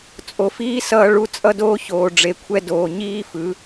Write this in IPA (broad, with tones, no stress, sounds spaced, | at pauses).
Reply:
t͡sʼ o˨ f iː˦ s ʌː˧ ɭ u˧ t͡sʼ ʌ˦ d oː˦ ç oː˨ ɖ͡ʐ e˨ kʷʰ ɛ˧ d oː˨ ɲ iː˦ f ɯ˨˦